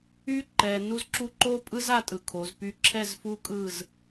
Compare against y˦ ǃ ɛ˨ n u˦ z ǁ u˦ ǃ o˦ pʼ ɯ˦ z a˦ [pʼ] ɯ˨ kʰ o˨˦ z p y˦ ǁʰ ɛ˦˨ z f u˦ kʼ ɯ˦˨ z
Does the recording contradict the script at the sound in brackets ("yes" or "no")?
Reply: yes